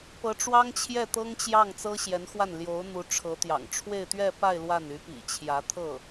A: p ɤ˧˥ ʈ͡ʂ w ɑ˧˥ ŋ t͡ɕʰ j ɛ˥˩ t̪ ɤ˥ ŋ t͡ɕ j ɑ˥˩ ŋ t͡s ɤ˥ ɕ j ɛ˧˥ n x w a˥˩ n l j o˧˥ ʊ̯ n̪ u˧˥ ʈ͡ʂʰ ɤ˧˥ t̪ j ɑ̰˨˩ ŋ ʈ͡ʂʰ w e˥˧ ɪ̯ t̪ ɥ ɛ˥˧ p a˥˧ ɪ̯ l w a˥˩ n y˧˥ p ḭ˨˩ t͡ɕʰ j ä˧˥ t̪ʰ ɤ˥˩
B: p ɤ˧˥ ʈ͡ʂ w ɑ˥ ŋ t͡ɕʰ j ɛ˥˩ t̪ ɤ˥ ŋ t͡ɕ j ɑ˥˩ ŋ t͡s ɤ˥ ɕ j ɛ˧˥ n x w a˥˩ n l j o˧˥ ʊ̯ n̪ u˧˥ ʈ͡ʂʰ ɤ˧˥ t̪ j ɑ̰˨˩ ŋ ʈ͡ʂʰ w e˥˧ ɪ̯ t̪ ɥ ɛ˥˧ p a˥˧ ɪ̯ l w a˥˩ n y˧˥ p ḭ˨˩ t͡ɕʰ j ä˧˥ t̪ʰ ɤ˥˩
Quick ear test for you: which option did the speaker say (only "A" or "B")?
B